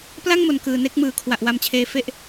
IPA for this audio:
p l a˥˩ ŋ m o˨˩ n k ɯː˨˩ n e˥˩ k̚ m ɯː˨˩ kʰ w a˨˩ ʔ w a˧ m t͡ɕʰ eː˧ f e˥˩ ʔ

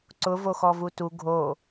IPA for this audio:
ǀ ʊ v o x ɔ v u t u ɡʱ o

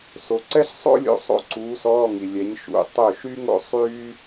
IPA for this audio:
s o˨ ǀ ɛ˥ ɬ sˤ o̰˥ lʲ o̰˨˥ sˤ o̰˥˩ ǀ uː˨˥ s ɔː˧˥˧ ŋ i˨ lʲ ɛ˨˥ ɲ ʃ ṵ˨˥ tˤ ø˥˩ ʃ y˥ ŋ o̰˥ sˤ yː˥

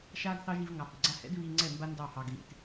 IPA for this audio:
ʃ aː˦ ɡ θ ɑ˦ ʒ i˧ v ŋ ɑ˨ h ʊ˨ ɡ͡ǀ a˧ h ɛ̰˦ d β iː˧ ŋ͡ǀ ɛ˦˨ m b a˦ n d ɑ˦˨ h ɑ˧ ɡ ɣ ḭ˧ t

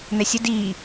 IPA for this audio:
n̪ ɛ sʲ ə d iː

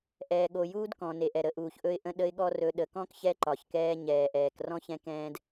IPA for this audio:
ʔ ɛː˨ ɠ o˨ j uː˦ d k ɔ̃˨ n e˨ ʔ ɛ˨ ɾ ə˨ ʔ uː˨ ç ʔ ɵ˦ ɪ̯ ʔ ə̃˦ ɗ ə˦ ɪ̯ ɠ ɔ˦ r ɵ˨ ɗ ə˨ k ɔ̃˦ k ç ɛ˦ ǃ ɒ˨ ç k ɛː˦ ɲ ɛː˨ ʔ ɛː˨ k r ɔ̃˦ ç ɛ̃˦ k ɛ̃ː˦ d

